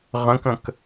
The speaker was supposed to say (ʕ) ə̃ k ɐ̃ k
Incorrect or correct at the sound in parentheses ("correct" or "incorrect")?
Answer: incorrect